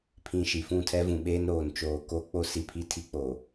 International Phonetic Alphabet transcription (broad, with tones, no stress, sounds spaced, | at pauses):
pʰ ĩ˨ ʃ i˨ f ũ˦˨ tʰ ɛ˦ v ũ˨ ɓ eː˦ n ɾ oː˨ n t͡ʃ oː˨ k o˦ k͡p o˦ s i˨ pʰ i˦ tʰ i˦ k͡p o˨